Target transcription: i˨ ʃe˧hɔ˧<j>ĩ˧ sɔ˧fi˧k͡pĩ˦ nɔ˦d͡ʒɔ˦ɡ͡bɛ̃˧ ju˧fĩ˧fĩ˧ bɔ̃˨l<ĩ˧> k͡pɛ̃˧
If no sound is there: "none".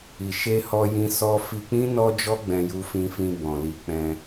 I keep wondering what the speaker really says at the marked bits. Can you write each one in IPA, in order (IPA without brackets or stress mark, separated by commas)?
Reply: j, i˧